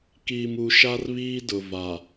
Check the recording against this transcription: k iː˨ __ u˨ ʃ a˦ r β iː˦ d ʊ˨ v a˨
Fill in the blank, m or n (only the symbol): m